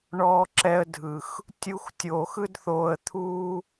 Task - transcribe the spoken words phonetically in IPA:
ɳɔː˧ǁɛ˧ə̯dʱɯ˨x | tʲu˧xtʲoː˨x ɯ˦dθoː˧ə̯ t̪ʰuː˦

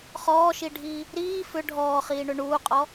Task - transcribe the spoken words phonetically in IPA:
χɔːʃiɖʱiː | ɾiː fʏ ɖʱɔːχiːɳʏ ɳuːqʼɔ

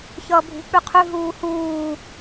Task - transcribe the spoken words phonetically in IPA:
çʌːbʱṳ k͡pʉqʰʉ ɦuːhuː

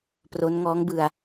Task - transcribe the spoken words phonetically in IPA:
pro˦˥n ŋɔː˦˥ŋbɯ˧a̯

